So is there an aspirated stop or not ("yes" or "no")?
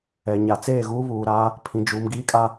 yes